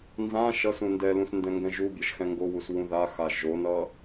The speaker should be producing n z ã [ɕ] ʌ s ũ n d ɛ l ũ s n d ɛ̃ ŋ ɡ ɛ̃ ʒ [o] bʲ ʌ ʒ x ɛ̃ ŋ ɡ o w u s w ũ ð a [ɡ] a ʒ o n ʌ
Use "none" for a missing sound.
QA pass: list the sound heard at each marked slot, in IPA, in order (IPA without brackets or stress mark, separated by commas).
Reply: ʃ, u, x